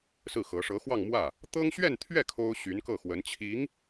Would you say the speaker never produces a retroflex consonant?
no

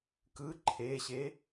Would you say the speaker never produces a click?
no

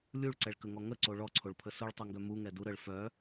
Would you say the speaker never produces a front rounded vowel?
no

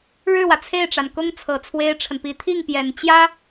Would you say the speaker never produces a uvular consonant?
yes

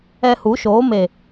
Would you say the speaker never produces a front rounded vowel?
yes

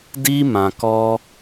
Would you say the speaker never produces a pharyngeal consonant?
yes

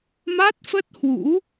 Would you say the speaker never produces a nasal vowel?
yes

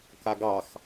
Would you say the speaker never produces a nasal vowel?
yes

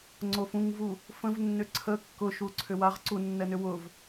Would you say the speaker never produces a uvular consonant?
no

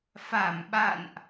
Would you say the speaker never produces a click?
yes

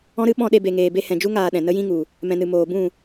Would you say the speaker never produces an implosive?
no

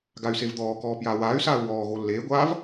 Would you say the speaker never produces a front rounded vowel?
no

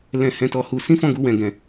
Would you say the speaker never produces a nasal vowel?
no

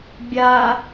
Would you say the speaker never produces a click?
yes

